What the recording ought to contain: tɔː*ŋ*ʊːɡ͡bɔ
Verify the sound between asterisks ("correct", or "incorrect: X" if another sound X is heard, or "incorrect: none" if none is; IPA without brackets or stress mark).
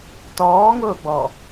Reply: correct